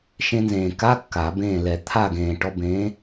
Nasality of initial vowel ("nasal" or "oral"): nasal